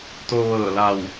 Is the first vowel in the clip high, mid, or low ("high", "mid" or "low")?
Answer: mid